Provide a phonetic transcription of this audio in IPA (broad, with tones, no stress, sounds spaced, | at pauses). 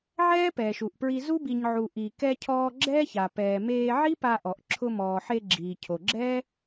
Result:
ʕ ɛː˥ p ɛː˩ ʃ u˩ ʔ p ɹ i˧ z u˥ b i˩ ɲ ʕ u˩ ʔ i˩ k ɛ˧ cʰ ɔː˧ ɡ͡ǁ ɛː˥ ç a˩ p ɛː˩ m eː˧ ʕ i˥ p a˧ ʔ ɔ˩ ʔ ǁʰ ʊ˧ m ɔː˩ ħ e˧ ɡ͡ǁ iː˩ cʰ o˩ ɡ͡ǁ ɛ˥